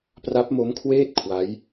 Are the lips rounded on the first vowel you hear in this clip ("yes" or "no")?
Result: no